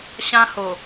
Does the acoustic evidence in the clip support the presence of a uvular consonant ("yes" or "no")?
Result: no